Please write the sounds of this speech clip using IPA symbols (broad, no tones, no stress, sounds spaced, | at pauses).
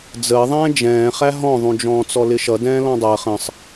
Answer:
d͡z əː ðˤ ɛ̃ː d͡ʒ ɛ̃ː χ æ ɦ ɔ̃ ðˤ ũ d͡ʒ ɔ̃ː t͡s ɔ l ɪ ʃ ʌ d ɛ̃ː l ɔ̃ dˤ əː χ ə̃ sˤ